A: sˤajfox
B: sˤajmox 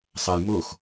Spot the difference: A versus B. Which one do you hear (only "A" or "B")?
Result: B